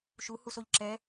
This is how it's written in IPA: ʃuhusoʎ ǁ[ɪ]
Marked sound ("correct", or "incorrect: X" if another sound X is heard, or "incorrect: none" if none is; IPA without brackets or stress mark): incorrect: ɛ